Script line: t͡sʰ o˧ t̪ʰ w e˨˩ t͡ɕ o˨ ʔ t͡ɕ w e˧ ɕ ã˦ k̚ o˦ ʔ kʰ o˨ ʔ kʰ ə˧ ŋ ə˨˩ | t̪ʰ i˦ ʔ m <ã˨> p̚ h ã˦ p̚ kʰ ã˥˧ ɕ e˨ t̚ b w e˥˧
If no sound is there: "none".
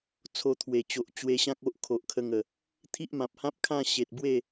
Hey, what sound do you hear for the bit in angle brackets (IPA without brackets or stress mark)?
ã˨